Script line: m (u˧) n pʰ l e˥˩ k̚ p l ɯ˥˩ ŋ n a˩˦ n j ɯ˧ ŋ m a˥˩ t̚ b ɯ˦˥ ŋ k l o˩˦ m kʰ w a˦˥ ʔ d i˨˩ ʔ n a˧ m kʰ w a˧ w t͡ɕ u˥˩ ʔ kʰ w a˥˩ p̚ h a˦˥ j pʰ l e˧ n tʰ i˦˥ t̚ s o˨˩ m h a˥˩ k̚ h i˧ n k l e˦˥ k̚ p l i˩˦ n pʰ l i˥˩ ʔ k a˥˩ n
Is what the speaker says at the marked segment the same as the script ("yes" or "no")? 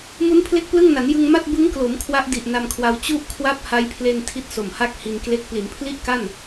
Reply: no